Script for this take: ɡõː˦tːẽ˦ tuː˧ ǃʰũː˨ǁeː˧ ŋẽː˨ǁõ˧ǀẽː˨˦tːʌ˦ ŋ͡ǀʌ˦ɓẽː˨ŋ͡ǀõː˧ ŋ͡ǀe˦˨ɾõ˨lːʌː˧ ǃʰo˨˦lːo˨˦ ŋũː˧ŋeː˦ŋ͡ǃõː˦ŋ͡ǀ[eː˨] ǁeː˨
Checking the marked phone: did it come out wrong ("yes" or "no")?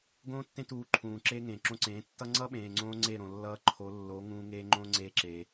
yes